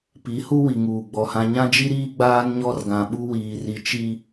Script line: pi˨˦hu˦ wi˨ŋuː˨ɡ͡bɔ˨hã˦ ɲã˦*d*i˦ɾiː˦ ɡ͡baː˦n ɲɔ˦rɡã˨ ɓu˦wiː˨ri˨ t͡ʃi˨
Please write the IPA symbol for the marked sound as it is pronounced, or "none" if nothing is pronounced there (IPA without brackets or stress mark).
d͡ʒ